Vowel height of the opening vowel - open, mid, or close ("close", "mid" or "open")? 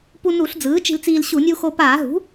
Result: close